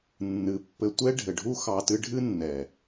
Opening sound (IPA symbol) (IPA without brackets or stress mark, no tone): nː